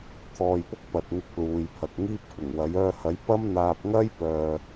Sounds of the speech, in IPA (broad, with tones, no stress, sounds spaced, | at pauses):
t̪ʰ ɔː˧ j p ʊ˥ k̚ p ɐ˨ t̚ ŋ ɪ˧ k̚ l uː˨˧ j pʰ ɐ˨ k̚ ŋ iː˥ p̚ kʷ ɪ˨˩ ŋ w ɐ˨˥ j œː˧ h ɐ˨˥ j p ɐ˥ m n̪ aː˧ p̚ ŋ ɐ˥ j p œː˨